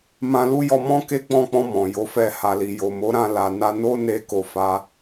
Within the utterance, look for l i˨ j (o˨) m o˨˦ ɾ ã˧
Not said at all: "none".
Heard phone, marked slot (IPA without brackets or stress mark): o˨